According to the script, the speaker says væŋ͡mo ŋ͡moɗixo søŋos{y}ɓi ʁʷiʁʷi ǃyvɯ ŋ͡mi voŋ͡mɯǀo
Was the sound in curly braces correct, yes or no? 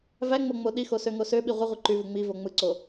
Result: no